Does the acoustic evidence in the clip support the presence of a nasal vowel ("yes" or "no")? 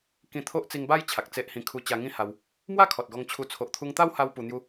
yes